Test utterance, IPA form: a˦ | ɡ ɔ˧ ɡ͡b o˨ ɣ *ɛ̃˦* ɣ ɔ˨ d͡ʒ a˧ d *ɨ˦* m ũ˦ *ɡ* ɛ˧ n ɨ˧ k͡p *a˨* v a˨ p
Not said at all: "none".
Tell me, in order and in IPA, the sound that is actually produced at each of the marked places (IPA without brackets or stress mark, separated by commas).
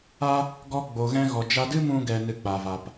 ɛ̃˧, ɨ˦, ɡ, a˨